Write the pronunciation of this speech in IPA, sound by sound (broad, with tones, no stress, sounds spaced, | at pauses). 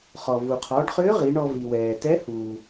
χ ɔ˩ v u˩ qʰ ɔ˩˧ ɖ χ ʏː˧˥ ʁ i˩˧ ɳ ɔ˧ v i˩ w ɛː˩ t ɛ˧˥ h uː˩